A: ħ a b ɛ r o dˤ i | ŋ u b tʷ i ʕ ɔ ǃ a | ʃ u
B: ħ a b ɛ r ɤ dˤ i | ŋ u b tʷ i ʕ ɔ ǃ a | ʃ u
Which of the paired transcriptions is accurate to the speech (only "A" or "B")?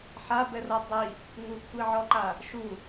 B